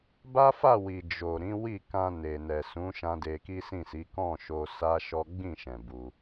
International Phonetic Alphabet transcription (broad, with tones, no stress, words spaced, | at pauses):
ba˦fa˦˨wi˨ d͡ʒo˨ ɾĩ˨˦wi˦˨ kã˧ne˨nɛ˨ sũ˨˦ʃã˧ de˧ki˦sĩ˦˨si˨˦ kɔ̃˦˨ʃo˧ sa˦ ʃɔ˦ ɡ͡bĩ˦˨ʃɛ̃˨ bu˧